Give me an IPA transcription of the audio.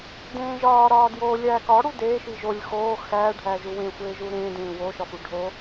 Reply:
dẽːʒɒːɾɒː djoːlʲæːkɒɽu deːʃi ʒolʲ xoː xæː ɖʱæːʒuwẽxʷeː ʒuɾẽːdẽː woʃɒfu ɖʱo

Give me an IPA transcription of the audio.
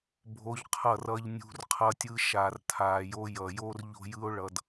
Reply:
bʱo˧ʎqʰʌ˦˨r ʌ˧ʎnʲṳ˧r qʰʌ˧tʲɯ˧ ʃa˨rtʰaː˨jo˧ jʌ˨jo˦r ʎo̤˦jɯ˦o̯ ɭʌ˧d

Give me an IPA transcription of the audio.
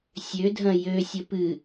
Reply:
sʲødʱɐ̃ jøsʲə pɨ

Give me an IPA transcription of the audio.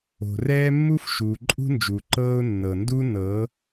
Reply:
o̤˨rɛː˦mːu˦f ʃuː˨ǃʼṳ˦nd͡ʒuː˨ǃɤː˦ʊ̯ nːɤ˨ndu˦nɤ˨˦

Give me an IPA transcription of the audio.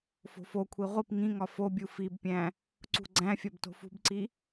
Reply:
fo̤fokʷʰi ʁʷip ŋĩŋɒ fobʲu fibpʲæ̃ | ǀṳɡ͡ǀæ̃fʲɒb to̤fṳbǀi

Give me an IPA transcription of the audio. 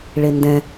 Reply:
ɭendɛ̃

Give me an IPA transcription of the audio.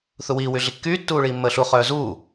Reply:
θuwiː wyɮikːyː tːuːɭiːmːəːɬu χœːzuː

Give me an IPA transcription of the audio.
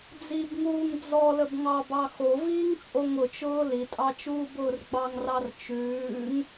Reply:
d͡zibŋuːŋ d͡zɔləb ŋɑbɑ xoviːŋ t͡sʼoŋʊt͡ʃʊː litʼɑ t͡ʃuːbʊːrɡ͡bɑŋrɑr t͡ʃʉːŋ

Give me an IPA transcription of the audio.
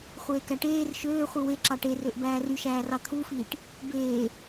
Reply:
χʷeːkæʈeːr ʃøːχʷɯ weǁɑ ʈerøʔ bæːryʃæːrɑ t̪ʰufiːʈ | beː

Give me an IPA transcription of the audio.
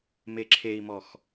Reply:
meǁʰei̯mɔx

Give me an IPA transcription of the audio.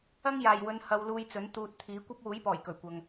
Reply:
ɐ˥ŋ jaː˨jwɵ˨˧n hɐ˧wluː˧jt͡sɵ˨˥n t̪uː˨t̚ t̪ʰiː˨˥kʷɐ˥p̚ wuː˨˥jpɔː˨˩j kɵ˨˩ɥkʷɐ˨ŋ

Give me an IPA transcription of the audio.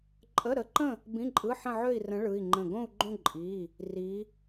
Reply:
ǃʼə˧˥˧ɾə˧˥ǃə̃˥˧ | bĩ˧˥˧ǃʼɯ˧˥˧ ħə̃˥˧ʕø˥˧i̯rə̃˧˥ ɭɯ˧˥˧i̯ŋ͡ǃə̃˥˧ ɡõ˥˧u̯ɡ͡ǃõ˥˧ ǃʼi˧˥˧ | ri˧˥

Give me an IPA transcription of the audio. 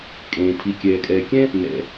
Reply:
kʼẽː˩ tʰi˩kʲɛː˩kʼɛː˩ kʲɛ̃˥ | nɛ̰˩

